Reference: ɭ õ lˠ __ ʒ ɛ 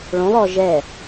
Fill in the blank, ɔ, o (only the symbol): ɔ